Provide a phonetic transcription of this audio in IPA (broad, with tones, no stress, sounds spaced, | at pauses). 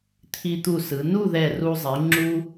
t̪ʰ i˧ t̪ u˧˩ s ɯ˩˧ n u˥˧ ð ɛ˧˩ r u˧ zˤ i˩˧ ŋ͡ǁ u˥